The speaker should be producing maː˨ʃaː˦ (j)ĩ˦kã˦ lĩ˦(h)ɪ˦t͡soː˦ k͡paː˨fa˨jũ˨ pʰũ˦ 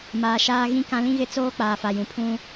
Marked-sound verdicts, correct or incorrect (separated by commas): incorrect, incorrect